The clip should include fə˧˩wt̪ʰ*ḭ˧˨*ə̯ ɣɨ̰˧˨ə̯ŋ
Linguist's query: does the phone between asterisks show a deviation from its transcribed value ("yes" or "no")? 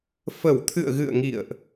yes